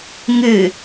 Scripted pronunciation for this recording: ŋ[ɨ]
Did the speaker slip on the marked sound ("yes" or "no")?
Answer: no